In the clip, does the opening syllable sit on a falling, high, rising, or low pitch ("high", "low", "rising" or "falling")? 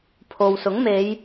low